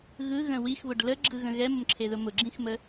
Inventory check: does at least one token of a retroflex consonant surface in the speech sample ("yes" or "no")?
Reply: yes